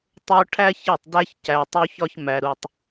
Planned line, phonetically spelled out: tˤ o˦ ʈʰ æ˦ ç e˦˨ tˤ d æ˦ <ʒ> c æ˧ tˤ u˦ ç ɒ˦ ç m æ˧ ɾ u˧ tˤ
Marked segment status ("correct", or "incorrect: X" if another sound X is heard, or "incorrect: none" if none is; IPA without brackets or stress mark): incorrect: ç